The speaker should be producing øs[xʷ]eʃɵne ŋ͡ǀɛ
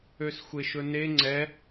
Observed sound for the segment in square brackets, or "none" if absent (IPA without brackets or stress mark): xʷ